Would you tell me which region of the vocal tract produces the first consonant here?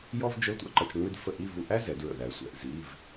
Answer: palate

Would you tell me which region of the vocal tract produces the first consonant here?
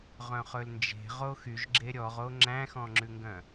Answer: uvula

